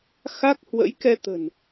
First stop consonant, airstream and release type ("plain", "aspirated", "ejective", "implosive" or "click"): plain